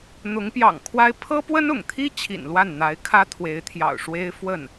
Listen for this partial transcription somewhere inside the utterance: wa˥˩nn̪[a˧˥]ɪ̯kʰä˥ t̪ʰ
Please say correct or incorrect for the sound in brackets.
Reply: correct